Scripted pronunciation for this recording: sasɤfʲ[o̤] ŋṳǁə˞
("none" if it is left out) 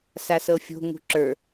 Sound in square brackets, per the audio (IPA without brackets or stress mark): o̤